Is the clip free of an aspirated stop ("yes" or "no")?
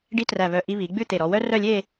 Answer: yes